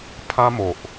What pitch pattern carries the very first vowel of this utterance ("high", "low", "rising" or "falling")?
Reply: high